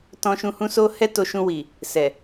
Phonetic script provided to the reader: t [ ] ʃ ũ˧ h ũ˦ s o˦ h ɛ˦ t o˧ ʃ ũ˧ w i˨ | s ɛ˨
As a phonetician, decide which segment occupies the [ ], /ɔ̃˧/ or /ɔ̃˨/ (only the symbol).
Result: ɔ̃˧